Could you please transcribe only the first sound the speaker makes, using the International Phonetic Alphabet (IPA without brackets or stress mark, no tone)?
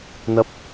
n̪